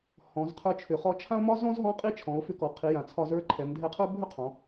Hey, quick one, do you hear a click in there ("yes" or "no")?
yes